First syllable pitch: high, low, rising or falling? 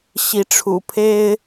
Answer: rising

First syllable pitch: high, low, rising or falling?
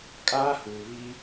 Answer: high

